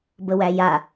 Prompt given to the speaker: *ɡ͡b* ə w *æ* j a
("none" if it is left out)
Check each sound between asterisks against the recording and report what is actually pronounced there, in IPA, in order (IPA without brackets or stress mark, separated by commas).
b, æ